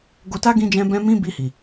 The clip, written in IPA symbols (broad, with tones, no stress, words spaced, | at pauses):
ɡo˧ta˦ ɡĩ˧d͡ʒɛ̃˧ bɛ̃˧mĩ˧ bi˧hi˨